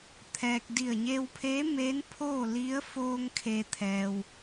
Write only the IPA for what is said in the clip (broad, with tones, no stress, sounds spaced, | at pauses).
t̪ʰ ɛː˧ k̚ d i˧˩ ə̯ ɲ e˧ w pʰ eː˧˥ m eː˧˥ n pʰ oː˥˨ l i˧˥ ə̯ f oː˧ ŋ kʰ e˩ t̪ʰ ɛː˩ w